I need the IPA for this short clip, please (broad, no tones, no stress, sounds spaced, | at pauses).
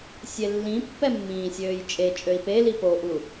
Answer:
sʲ e lː ĩ pː ɛ mː ĩː sʲ øː j t͡ʃʼ e t͡ʃʼ ø i̯ p e l i p o ʔ u